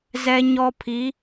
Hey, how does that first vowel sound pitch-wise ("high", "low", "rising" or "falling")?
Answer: high